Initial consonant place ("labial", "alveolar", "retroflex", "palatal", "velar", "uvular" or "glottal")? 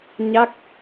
palatal